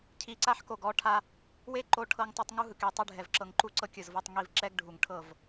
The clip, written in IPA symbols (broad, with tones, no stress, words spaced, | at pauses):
cʰi˨ǀa˦ħko˨ ɡɔ˨˦ʈʰa˧ | we˦ǃo˧ ʈʰɤ˧ŋtˤɤ˧tˤ ŋu˧ɦɯ˨ke˨ tˤɯ˧ɖʱɛ˨v ǁɤ˨ŋǃu˧ ǀɤ˦kʲɯ˨zvɤ˧tˤ ŋi˧v ǁɛ˦ɡ ɖʱu˨ŋʈʰɤ˦˨v